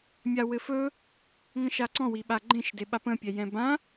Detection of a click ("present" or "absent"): present